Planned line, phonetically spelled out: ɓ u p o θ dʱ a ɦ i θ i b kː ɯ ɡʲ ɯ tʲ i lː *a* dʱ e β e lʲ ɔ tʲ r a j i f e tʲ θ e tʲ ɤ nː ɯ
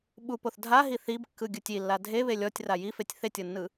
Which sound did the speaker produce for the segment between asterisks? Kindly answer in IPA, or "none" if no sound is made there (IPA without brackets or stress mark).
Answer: a